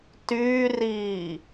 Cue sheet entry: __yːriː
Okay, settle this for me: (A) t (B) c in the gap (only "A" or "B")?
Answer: A